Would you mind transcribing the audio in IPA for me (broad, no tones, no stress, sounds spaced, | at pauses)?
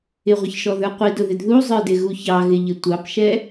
ɪ ʁʷ ə ç ʃ ɔ ð ə˞ qʷ i d ʊ ð ɪ d ð u zˤ ə˞ d ɪ ɣ u ç ɑ ɣ ɪ ʎ ɪ tʷ ɑ p ʃ ɛ